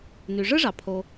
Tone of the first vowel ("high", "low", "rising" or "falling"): low